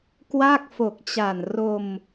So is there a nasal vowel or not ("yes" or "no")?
no